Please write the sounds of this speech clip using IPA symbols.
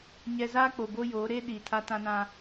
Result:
ɲ ɛ˨ z aː˦ k͡p o˨ b o˦ j oː˨˦ ɾ eː˦ ɗ iː˨ tʰ a˦ t ã˦ n ã˦

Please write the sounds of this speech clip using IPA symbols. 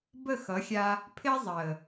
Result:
b ə˦˨ x ʌ˨˦ xʲ a˧ | pʰ ɪː˦ zˤ əː˨

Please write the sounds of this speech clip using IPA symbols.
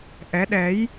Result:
ʔ ɛ˨˦ ɗ ɛ˨˦ j

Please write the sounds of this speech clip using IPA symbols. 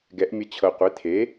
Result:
ɡ ɛ˩˥ ʔ mʲ ə˧ t͡ɕʰ ɤ˩ qʷ e˩˥ tʰ e˩˥

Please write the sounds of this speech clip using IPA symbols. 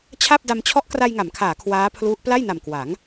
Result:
t͡ɕʰ a˥˩ p̚ d a˧ m t͡ɕʰ ɔ˦˥ ʔ k r a˧ j ŋ a˩˦ m kʰ aː˩˦ kʰ w aː˦˥ pʰ l u˦˥ ʔ p l a˥˩ j n a˨˩ m k w a˩˦ ŋ

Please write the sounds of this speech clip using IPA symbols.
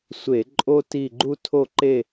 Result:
sʷ e˧˩˧ ǃʼ o˥ t i˦˨ ɡ͡ǃ u˥ tʰ o˦˨ ǃ e˦˨

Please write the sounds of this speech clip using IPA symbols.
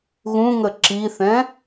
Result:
ɣ ũ ŋ ə ǁ i θ ɛ̃

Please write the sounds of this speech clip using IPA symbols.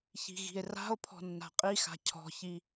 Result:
ç i̤ ɣ i̤ e̯ r a̤ o̯ pʰ ɔ̤ nː a̤ qʼ i x a̤ cʰ ɔ̤ ç i

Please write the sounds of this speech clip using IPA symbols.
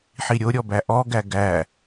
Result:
ħ i ɾʲ o ɾʲ ɔ b æ ʔ ɔ ɡ æ ɡ æ

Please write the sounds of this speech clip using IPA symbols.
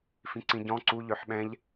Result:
f ĩ ǀ ĩ ɟ ɔ̃ ǀ u ʎ ø ħ ɓ ɛ̃ ʎ

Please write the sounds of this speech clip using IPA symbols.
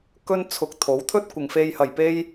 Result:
k ɵ˥ n t͡sʰ ʊ˧ k̚ t̪ʰ o˨˥ w t̪ʰ ɵ˥ t̚ kʷ ɪ˨˧ ŋ f e˥ j h ɐ˧ j p e˥ j

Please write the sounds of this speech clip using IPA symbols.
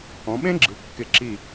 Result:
ɔ̃˩˧ ɓ ẽ˥ ɡ͡ǁ ɯ˩˧ kː ɪ˧˩ ǁ i˧˩

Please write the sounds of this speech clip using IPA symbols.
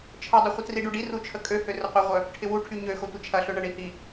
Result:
t͡ʃʰ ə dˤ u χʷ ə t r i ɖ u ɖ i r u t͡ʃʰ ə kʼ ø h ø r ə qʷ œ ʁʷ œ | ʈʰ ɪ w u ʈʰ y ɲ ø x o tʷ ə t͡ʃʰ ɐ ɬ ø ɳ ɐ ɳ i h i

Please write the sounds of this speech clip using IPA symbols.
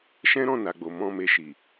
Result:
ʃ ɛ̃˦ ɾ ɔ̃˦˨ n a˨ ɡ͡b o˨ m ɔ̃˧ m e˧ ʃ i˨

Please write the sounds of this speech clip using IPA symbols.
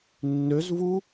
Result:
nː ø z v u

